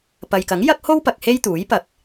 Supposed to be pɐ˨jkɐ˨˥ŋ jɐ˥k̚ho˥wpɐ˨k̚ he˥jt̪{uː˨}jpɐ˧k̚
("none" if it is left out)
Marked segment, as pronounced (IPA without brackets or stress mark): uː˨˥